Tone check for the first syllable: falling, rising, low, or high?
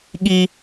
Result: high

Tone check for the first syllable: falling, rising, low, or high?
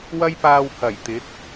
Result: high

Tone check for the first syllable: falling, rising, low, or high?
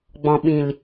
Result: low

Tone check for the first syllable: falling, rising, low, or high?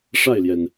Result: falling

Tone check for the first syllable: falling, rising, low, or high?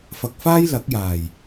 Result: low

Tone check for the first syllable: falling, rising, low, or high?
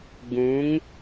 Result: rising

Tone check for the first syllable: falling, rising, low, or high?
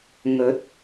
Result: rising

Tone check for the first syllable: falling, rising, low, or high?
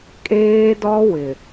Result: high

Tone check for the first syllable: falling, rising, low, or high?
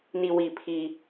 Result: low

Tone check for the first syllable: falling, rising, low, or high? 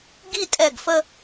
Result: falling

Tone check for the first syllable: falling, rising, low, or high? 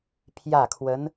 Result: falling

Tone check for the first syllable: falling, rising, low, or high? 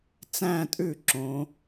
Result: falling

